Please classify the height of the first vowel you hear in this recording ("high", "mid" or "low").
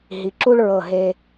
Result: high